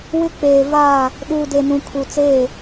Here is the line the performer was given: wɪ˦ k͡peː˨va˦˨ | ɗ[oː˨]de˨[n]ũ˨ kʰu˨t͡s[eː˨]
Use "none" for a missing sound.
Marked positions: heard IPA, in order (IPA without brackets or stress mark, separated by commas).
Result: uː˨, n, eː˦˨